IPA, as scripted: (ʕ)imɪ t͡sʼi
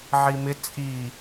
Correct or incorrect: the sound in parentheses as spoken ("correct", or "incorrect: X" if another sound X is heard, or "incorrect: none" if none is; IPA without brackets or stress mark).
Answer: correct